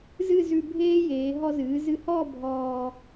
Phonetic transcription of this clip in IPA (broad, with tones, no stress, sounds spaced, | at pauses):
z ɨ˥˧ z ʉ˧ bʱ eː˥ j eː˩˧ ɦ ɔ˧ z ɨː˩˧ z ɨ˧ h ɔː˥˧ bʱ ɔː˧